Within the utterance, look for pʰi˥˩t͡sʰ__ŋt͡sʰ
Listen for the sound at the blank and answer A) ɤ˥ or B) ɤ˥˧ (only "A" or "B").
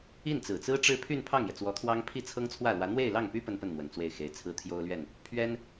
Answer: A